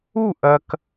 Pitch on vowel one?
falling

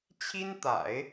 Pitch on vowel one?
high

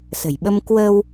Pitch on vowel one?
low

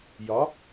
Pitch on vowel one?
rising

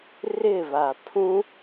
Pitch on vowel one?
falling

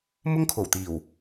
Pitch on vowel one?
high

